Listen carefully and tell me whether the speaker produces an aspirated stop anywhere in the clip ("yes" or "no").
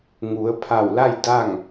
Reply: yes